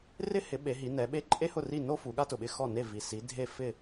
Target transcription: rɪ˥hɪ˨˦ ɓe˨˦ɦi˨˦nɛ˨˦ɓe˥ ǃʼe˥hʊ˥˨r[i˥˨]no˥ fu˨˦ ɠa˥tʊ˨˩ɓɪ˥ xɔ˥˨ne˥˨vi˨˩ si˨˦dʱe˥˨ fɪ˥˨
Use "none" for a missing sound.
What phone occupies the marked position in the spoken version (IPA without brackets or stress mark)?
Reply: i˥˨